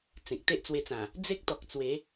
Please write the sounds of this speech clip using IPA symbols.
t͡s ẽ˨ k̚ t̪ e˦ ʔ t͡s w e˧ t͡s ã˨˩ | d͡z e˦ k̚ t̪ ɔ˨ k̚ t͡s w e˨˦

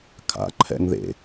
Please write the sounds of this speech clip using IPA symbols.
kʰ a̰ ǃʰ ɛ̰ ŋ ð ḛ

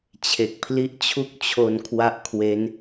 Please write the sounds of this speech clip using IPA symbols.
t͡ɕʰ e˨˩ k̚ pʰ l i˦˥ ʔ t͡ɕʰ u˥˩ k̚ t͡ɕʰ o˧ n kʰ w a˦˥ ʔ kʰ w e˦˥ n

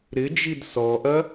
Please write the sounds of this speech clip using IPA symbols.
ɾ ɪ d͡ʒ i d s ɔ ʔ ɐ

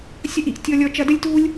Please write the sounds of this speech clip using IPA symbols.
sʲ ɐ˥ ʔ i˩ ʔ tʲ ɔ˥ lʲ ɔ˥ t͡ʃ ɐ˥ d ɘ˥ lʲ t uː˥ lʲ

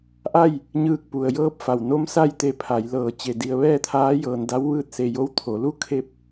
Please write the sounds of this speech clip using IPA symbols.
ʔ a˥˨ j | ɲ ɯː˧˩ k̚ p u˩ ə̯ j ɤː˧˥ p̚ f a˩ w n o˧˥ m s a˥˨ j t̪ e˧ pʰ a˩˧ j l ɤː˧˩ t͡ɕ e˧˩ d i˧ ə̯ ʋ ɛː˥˨ t̪ʰ aː˧˥ j ɤː˧ n d a˧˥ w ʋ ɯː˥˨ t̚ s e˧ j o˧˥ w t̪ʰ o˩˧ l u˧˥ kʰ e˥˨ p̚

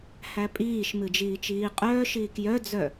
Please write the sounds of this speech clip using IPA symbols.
h æ pʼ iː ʃ m ɨ d͡ʒ iː t͡ʃ iː qʼ œː ʃ iː k j œ d͡z œ

